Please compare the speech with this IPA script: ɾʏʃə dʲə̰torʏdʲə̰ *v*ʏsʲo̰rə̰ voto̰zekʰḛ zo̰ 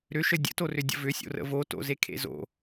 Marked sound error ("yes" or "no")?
no